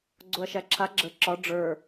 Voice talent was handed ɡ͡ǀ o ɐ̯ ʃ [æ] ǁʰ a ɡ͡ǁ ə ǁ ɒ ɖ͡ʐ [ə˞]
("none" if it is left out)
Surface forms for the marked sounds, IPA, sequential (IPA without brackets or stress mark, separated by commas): æ, ə˞